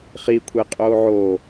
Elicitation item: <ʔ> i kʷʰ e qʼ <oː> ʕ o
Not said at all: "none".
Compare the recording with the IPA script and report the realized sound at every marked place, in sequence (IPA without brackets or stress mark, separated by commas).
χ, oː